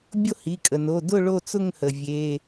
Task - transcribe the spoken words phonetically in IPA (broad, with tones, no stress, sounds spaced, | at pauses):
bʲ o˥˧ h i˩˧˩ kʼ ə˩ n o˩˧˩ d ʊ˥˧ ɭ o˥˧ t͡s ʊ˥˧ ŋ h ə˩ vʲ e˩˧˩